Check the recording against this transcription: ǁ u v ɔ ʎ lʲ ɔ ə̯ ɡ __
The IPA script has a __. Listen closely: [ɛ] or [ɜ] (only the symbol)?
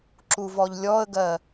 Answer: ɜ